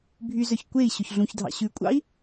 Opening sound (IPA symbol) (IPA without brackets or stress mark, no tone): bʱ